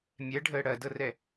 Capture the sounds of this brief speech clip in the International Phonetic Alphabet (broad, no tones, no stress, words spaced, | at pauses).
mʲɛɖʱəː ɽɐdɤrɛ